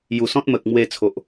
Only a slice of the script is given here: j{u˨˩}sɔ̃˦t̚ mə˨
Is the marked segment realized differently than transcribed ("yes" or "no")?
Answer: no